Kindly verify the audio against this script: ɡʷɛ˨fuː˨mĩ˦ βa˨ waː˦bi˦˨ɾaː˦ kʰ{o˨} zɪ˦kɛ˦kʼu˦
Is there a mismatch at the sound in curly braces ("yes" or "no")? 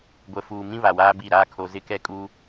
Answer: no